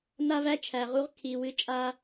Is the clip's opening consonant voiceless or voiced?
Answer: voiced